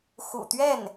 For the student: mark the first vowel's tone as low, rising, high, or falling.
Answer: low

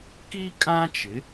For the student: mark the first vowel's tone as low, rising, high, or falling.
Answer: high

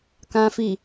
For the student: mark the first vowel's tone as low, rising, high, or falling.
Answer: low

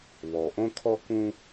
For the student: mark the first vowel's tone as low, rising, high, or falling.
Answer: low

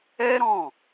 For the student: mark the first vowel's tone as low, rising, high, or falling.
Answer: high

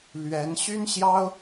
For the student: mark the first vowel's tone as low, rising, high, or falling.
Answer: rising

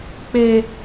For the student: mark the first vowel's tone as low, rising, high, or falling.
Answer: high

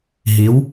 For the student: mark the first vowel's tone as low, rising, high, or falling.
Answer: rising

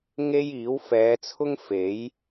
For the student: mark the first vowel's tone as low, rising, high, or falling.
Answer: high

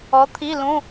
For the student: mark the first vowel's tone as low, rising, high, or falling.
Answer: rising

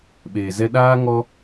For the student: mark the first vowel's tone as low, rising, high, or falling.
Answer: low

